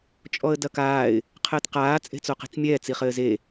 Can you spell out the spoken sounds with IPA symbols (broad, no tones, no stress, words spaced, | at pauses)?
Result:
t͡ʃʼɔə̯dɐkaːɪ̯ | qʰɘːtqaː t͡sʼe̤t͡soqi̤t͡smʲɛː t͡siχɘːze